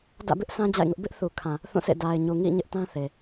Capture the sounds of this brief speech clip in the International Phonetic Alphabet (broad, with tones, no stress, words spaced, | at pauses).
dä̰˦˨bɪ˦ʔ sã˦ d͡ʑa̰˦˨ɪ̯ŋʊ˦ʔ bɪ˦ʔθu˨kʰã˨ | θũ˦˨sʰḛ˦˨ da˨ɪ̯ɲu˨ ŋḭ˦˨ ɲɪ˦ʔ tã˦θe˨